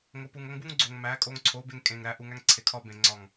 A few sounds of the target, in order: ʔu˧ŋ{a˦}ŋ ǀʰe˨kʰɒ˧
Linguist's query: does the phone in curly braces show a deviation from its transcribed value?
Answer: yes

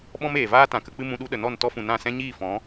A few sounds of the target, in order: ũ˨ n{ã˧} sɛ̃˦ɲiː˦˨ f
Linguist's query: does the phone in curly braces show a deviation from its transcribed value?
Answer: yes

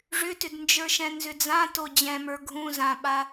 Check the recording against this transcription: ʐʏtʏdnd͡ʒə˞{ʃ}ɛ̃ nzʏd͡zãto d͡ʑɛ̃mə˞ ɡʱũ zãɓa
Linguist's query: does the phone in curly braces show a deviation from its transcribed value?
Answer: no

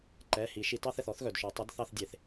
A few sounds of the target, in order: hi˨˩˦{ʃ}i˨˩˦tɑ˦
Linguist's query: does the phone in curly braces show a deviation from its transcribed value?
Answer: no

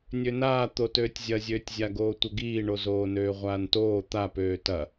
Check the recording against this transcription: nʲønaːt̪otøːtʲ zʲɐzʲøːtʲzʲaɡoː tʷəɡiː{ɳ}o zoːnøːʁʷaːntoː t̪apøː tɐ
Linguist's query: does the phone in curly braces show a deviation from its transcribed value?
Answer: no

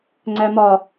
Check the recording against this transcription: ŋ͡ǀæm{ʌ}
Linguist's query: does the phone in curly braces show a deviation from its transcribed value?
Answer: yes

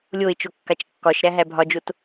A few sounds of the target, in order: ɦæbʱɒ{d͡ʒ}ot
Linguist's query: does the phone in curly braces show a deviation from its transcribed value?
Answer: no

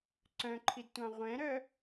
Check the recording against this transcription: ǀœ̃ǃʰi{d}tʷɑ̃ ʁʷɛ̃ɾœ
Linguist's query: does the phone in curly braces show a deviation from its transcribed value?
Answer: no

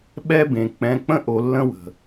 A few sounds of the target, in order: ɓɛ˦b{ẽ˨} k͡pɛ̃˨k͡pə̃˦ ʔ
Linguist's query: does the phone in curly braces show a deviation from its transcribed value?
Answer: no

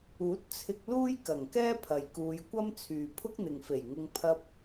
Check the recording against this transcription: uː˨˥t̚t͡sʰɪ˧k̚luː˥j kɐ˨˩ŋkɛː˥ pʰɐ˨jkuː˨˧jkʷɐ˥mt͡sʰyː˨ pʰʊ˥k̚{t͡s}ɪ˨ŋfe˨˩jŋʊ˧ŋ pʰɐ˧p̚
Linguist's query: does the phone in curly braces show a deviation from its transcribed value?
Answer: yes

